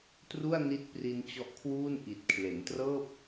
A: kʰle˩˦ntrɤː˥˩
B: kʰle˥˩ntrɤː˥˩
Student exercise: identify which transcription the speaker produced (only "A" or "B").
A